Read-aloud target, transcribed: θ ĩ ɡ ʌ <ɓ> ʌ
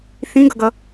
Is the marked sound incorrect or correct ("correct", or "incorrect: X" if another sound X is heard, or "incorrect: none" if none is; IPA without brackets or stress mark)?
incorrect: ɡ